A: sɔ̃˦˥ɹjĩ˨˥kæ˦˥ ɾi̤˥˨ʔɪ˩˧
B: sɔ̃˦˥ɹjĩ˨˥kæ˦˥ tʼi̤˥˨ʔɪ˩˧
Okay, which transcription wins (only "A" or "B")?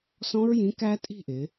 B